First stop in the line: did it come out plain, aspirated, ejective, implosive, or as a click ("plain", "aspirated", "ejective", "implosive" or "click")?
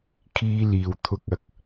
aspirated